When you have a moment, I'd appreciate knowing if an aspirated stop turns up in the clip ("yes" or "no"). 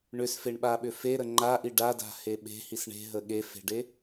no